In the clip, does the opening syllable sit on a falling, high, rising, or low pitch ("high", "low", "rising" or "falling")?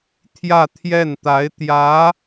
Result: falling